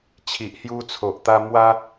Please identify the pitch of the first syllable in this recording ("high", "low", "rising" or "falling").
low